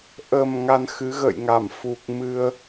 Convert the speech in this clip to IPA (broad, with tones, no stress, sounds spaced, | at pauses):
ʔ ə˨˩ m ŋ a˧ n x ɨ˨˦ ɣ ə̰˧˨ j ŋ a˧˩ m f u˨˩ k̚ m ɨ˧ ə̯